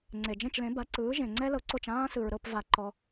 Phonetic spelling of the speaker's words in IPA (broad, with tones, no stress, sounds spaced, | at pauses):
ŋ͡ǀ e˩ d͡ʒ ẽ˥˩ t͡ʃ l ẽ˩˥ b a˩˥ ǀ ɯː˩˥ ʒ ẽ˩ ŋ͡ǀ ɛ˥ l ɤ˧ ǀ o˥˩ t͡ʃ ãː˥ s ɯ˩ ɹ ɾ ɤ˥˩ p v a˩ ǃ ɔ˩